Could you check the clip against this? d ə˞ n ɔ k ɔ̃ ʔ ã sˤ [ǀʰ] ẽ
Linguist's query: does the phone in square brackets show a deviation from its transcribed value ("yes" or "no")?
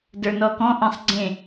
yes